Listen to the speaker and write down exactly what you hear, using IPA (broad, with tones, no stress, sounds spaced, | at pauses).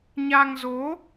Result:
ɲ a˧ ŋ z o˨˦